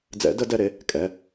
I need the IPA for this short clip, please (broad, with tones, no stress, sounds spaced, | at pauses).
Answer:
d͡z ɛ̰˨˩˦ d ə˨˩˦ d ɛ˩˧˩ ɾ e˩˧˩ | kʼ ɛ˩˧˩